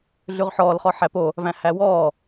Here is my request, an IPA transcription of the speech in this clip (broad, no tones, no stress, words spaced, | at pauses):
ɮʉʁħɔːlχɔ ħæpo | væ̃hæwɔː